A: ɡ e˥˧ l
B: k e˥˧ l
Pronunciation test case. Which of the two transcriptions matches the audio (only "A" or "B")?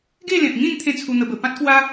A